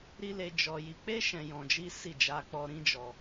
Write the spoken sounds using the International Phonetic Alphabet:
ɾ i˦ l e˧ d͡ʒ ɔ˧ j i˧ k͡p e˦ ʃ ɛ̃˧ j ɔ̃˧ d͡ʒ i˦ s i˦˨ d͡ʒ a˧ k͡p ɔ˧ ɾ ĩ˦ d͡ʒ ɔ˧

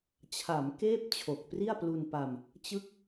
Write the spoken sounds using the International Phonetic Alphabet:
t͡ɕʰ a˩˦ m k eː˥˩ p̚ t͡ɕʰ o˨˩ k̚ p r i˥˩ a̯ p l u˧ n p a˧ m | t͡ɕ ɯ˥˩ k̚

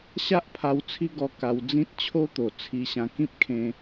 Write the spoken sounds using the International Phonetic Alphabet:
ɕ a˦ ʔ pʰ a˧ w t͡sʰ i˦ ɡ ɔ˧ k a˧ w d͡z ĩ˦ t̚ t͡ɕʰ o˦ t̪ o˨˩ t͡sʰ i˧ ɕ ã˧ k ĩ˦ p̚ kʰ ẽ˧

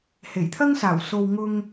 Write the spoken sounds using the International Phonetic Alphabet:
h e˨˩ j t̪ʰ ɐ˥ ŋ s aː˨˩ w s o˨ w ŋ ʊ˧ ŋ

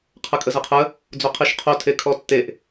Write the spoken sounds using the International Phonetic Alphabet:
qʰ ə kʼ ə z ə qʰ ə | d͡z o qʰ i ʃ qʰ o tʰ e kʰ ɔ tː e ʔ

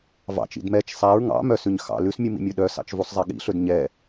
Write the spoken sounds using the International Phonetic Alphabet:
v ɑ̰ t͡ʃ ḭ d m ɛ t͡ʃ sˤ æ ɹ ŋ ɑ̰ m œ s ʉ ɲ x ɑ̰ l ʉ s mʲ u m ḭ mʲ o ɗ œ s ɑ̰ t͡ʃ v u sˤ zˤ ɛ ɠ ḭ ɬ ɵ d ɲ ɛ

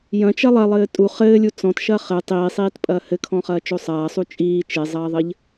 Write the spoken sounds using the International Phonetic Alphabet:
j ɐ̃ t͡ʃ ɐ lˠ ɐ lˠ ɘː tʼ u χ ɘː lʲ u t͡s ɔ̃ t ʃ ɐː χ ɘ tˤ iː sˤ iː t pʼ ɐː h ɘ kʰ ɔ̃ χ ɐː t͡ʃ o sˤ ɐː sˤ u t͡ʃʼ iː t͡ʃ e zˤ ɐː ðˤ ɘ ʎ

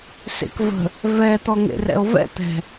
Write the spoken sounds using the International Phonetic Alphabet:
s ḛ k v ə̤ | v ɛ t̪ ɔ ŋ ḛ r ɛ̰ o̯ v ɛ̰ t̪ ɛ̤

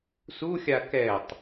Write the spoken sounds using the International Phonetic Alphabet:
s u xʲ a k ɛ tˤ

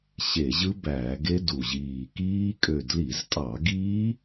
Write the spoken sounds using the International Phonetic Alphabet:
ɕ e˧˩˧ ʑ ɯ˦˥ b æː˧˩˧ ɡ e˦˥ d u˨˩ ʑ iː˨˩ k iː˦˥ kʼ ø˦˨ d l i˧˩˧ z tʼ ɑ˧˩˧ ɡ iː˦˥

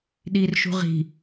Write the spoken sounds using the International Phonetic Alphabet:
ɗ i r ʃ ṳ ʁ i̤

